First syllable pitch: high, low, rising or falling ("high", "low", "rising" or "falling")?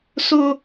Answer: high